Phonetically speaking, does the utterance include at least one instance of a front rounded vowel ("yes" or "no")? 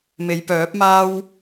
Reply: yes